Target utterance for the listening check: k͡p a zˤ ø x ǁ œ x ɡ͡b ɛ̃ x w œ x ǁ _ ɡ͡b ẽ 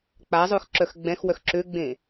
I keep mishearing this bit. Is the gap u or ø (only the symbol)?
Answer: ø